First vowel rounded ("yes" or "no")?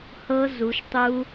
no